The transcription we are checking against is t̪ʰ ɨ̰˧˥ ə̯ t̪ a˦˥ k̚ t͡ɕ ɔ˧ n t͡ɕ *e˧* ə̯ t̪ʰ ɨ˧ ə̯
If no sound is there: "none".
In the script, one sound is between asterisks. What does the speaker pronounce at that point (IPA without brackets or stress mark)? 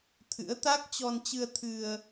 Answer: ɨ˧